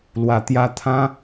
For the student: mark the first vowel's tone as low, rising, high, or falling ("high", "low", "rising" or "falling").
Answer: low